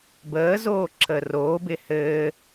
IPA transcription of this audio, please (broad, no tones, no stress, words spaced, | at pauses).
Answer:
bəːzoː ǁʰəːroːbɪː hɘː